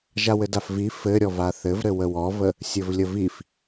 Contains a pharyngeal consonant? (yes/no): no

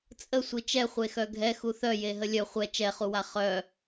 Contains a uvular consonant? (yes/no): yes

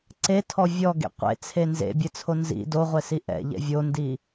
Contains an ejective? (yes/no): no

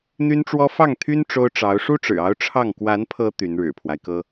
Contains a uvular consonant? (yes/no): no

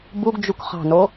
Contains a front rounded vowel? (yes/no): no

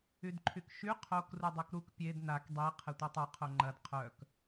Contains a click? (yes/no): yes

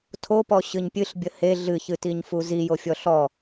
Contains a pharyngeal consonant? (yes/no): no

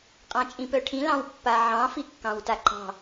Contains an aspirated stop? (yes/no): yes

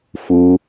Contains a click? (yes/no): no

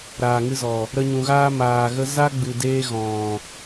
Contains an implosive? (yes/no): no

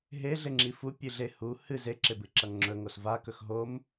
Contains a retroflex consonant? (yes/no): no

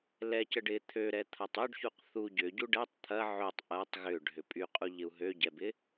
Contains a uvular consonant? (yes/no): yes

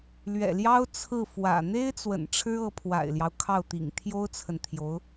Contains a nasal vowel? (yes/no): no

